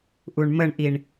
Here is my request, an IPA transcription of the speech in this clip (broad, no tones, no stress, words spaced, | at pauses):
ʔuɳməɳʔiɳ